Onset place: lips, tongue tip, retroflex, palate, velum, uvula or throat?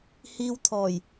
throat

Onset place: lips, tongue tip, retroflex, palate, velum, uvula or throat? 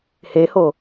throat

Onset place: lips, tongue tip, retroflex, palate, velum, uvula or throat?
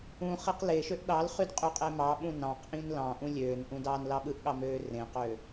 uvula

